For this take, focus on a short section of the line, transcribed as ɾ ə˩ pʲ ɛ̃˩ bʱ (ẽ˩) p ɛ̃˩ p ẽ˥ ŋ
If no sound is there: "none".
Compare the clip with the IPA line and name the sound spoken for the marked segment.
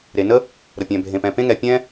ẽ˩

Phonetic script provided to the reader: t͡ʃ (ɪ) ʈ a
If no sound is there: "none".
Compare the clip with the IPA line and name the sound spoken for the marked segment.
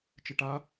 ɪ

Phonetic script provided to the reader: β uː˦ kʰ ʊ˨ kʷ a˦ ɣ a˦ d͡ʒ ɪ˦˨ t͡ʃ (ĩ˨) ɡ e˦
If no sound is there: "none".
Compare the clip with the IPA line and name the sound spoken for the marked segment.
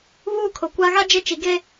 i˨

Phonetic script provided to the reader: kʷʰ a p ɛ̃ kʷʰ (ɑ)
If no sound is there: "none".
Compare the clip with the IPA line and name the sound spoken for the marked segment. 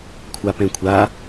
a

